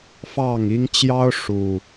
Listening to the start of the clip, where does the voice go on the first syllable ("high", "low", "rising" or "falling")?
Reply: falling